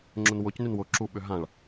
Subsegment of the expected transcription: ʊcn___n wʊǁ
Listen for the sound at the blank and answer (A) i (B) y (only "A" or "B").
B